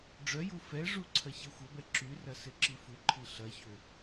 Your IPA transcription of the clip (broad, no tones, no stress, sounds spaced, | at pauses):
ɖ͡ʐ œ j u f ɛ ʐ u ǀʰ ɐ ç ɛ xʷ ɐ b ɛ ǁ y r ɐ s ɪ ǁ i f u ǃʰ i ɬ ɐ ç ø